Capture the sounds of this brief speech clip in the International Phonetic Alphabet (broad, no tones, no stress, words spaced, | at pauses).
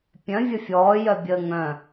pʲœ̃vʲə fʲɔːjœbʲəː ŋœ̃